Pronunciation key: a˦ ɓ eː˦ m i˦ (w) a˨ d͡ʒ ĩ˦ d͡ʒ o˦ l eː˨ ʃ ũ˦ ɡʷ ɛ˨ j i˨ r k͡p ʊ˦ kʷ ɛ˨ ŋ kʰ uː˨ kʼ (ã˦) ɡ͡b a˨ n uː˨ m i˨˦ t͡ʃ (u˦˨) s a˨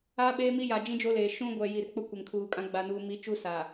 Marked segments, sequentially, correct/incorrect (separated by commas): incorrect, correct, incorrect